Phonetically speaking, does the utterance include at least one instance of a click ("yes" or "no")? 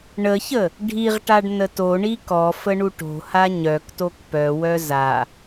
no